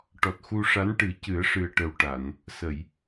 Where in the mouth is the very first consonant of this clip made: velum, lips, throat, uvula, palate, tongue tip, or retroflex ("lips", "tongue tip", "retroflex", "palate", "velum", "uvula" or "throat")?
retroflex